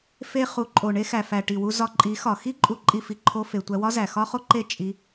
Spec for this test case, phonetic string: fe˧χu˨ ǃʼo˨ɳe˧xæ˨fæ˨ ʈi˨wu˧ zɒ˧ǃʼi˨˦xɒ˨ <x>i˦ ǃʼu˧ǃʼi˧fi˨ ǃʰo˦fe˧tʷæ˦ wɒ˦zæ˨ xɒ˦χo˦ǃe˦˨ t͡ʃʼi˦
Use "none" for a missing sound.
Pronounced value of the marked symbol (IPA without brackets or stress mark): x